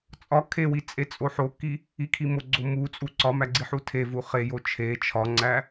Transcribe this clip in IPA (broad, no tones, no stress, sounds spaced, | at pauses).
t͡sʼ ɒ kʰ e w i t͡sʼ e t͡sʼ o ħ o k i | i kʰ i m o ɡ͡ǀ o m u t͡sʼ u ǀ ɒ m æ ɡ͡ǀ i ħ u tʰ e v u χ e j o t͡ʃʰ e t͡ʃʰ ɒ ŋ͡ǀ æ